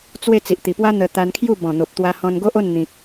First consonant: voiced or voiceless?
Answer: voiceless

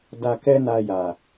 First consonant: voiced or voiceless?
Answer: voiced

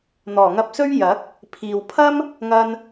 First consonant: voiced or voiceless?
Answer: voiced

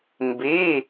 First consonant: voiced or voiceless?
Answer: voiced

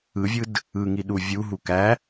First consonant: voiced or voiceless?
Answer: voiced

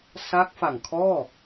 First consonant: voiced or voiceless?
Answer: voiceless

